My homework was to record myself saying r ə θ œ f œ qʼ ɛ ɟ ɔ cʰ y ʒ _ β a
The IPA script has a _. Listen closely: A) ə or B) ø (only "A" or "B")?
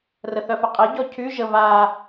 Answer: A